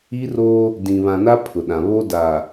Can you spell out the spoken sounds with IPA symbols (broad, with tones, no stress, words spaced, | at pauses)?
i˦roː˦ | dĩ˨ βã˨na˦ pʰʊ˨ɗã˨ βo˦daː˨